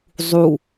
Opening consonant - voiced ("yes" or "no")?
yes